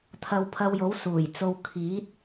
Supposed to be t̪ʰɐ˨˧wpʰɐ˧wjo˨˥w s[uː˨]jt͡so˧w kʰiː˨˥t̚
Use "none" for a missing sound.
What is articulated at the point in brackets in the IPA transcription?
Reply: uː˨˩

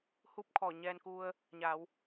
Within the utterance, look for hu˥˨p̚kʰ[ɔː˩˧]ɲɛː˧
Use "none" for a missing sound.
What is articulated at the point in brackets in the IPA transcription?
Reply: ɔː˧˩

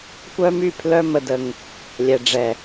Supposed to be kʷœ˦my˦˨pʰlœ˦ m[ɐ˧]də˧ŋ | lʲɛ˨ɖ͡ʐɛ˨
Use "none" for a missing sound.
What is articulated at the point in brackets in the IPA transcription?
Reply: ə˧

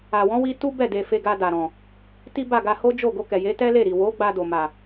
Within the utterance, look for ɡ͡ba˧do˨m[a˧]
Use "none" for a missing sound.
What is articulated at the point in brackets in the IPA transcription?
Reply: a˨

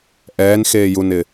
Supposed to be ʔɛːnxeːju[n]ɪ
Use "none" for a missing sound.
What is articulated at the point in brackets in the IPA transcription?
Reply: n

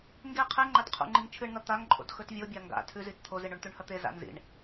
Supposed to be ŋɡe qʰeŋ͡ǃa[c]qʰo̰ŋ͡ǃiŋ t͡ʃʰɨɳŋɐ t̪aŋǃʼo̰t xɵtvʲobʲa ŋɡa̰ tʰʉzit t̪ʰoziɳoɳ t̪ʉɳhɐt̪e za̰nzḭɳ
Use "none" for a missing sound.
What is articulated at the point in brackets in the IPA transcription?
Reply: t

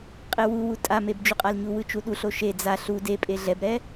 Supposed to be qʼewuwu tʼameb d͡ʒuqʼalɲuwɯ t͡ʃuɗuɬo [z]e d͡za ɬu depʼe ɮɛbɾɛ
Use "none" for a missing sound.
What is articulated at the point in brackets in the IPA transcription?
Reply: ʃ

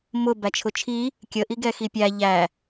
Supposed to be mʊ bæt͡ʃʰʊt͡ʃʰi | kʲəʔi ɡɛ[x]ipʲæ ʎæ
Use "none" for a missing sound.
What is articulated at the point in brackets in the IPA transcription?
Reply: x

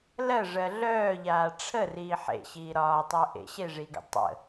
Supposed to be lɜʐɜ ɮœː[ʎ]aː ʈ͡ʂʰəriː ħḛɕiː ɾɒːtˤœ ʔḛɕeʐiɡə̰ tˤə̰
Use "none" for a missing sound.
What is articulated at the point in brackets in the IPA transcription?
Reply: ʎ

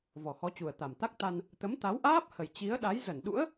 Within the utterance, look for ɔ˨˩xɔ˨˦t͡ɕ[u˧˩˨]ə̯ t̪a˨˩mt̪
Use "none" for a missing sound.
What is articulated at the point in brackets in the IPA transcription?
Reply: u˨˩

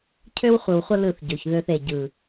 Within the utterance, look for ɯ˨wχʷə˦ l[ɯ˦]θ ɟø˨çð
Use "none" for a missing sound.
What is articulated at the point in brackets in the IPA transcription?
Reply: ɯ˦˨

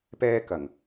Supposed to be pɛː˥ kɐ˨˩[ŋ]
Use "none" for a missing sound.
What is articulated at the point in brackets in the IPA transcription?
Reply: ŋ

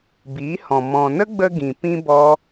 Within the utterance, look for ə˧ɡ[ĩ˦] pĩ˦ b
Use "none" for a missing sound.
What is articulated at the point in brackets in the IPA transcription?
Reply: ĩ˨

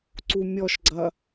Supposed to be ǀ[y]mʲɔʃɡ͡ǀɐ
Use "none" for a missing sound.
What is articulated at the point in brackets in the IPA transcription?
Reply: u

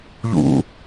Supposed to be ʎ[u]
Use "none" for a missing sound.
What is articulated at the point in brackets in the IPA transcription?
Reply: ṵ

